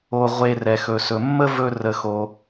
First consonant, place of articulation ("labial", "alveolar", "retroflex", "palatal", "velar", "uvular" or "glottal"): uvular